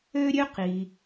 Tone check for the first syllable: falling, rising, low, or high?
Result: high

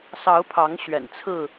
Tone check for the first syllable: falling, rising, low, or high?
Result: rising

